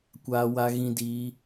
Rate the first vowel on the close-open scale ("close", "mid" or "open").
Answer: open